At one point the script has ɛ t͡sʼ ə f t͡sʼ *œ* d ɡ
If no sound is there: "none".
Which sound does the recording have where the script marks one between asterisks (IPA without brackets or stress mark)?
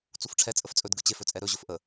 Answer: ɵ